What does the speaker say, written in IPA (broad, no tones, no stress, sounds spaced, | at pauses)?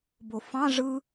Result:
b o f ɑ̃ ʐ ɯ